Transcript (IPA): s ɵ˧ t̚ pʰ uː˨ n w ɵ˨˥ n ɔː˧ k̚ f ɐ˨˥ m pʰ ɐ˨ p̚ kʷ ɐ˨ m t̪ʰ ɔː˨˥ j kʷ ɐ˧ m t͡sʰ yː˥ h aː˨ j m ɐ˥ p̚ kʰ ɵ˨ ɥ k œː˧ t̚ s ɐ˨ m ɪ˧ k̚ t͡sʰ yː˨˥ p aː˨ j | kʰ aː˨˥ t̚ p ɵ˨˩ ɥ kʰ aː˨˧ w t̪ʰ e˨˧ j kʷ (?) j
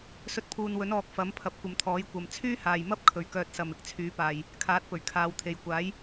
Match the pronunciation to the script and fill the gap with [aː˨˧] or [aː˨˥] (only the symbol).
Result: aː˨˥